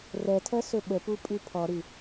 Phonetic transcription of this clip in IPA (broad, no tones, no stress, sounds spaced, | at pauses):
r ɛ tʰ ɜ s ɵ ɓ ə p u pʼ ʉ pʰ ɔ ɾ ʉ